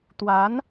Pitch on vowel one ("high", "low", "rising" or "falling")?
rising